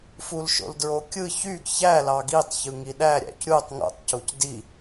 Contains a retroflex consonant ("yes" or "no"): no